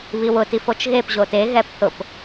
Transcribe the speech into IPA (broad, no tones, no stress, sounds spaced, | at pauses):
β i w ʊ t i f o t͡ʃ ɣ e p ʑ o t e ɣ ɛ p θ ʊ p